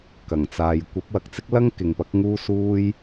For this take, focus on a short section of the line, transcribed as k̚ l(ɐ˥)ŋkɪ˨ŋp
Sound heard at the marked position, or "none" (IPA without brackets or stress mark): ɐ˥